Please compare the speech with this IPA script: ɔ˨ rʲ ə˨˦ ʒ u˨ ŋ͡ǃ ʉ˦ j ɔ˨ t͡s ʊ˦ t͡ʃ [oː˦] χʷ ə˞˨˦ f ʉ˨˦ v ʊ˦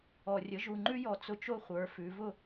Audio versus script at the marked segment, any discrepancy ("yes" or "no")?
yes